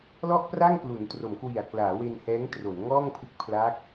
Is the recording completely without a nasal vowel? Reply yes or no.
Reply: yes